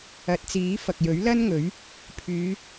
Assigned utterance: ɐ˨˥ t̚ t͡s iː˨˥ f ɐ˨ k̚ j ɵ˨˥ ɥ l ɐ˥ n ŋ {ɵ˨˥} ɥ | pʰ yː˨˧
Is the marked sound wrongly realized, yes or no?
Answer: no